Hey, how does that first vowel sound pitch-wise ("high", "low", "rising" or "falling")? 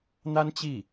high